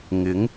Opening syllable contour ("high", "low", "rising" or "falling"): rising